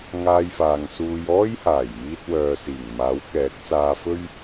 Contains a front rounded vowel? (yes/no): yes